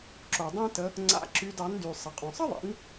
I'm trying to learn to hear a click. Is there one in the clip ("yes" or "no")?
yes